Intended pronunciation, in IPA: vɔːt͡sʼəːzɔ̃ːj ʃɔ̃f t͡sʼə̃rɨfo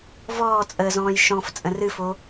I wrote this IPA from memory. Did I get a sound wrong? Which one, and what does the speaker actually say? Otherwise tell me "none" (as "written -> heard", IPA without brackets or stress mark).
none